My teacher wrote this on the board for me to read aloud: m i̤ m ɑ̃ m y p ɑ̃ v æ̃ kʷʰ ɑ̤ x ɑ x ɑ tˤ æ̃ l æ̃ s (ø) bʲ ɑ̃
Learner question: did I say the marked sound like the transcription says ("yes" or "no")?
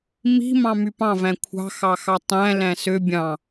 yes